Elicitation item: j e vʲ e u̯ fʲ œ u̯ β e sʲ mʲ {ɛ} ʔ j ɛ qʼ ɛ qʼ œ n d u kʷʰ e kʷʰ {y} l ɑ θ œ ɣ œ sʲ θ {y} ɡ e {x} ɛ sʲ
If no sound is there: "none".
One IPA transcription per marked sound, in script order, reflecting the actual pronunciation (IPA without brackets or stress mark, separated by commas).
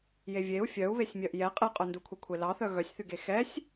œ, e, y, x